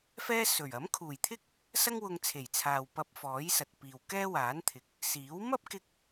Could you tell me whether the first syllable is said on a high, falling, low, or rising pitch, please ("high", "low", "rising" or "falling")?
high